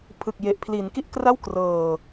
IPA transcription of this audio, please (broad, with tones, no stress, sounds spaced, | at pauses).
pʰ ɯ˨˩ k̚ j e˨˩ ʔ pʰ l i˩˦ n k i˥˩ ʔ k r a˥˩ w k r ɤː˨˩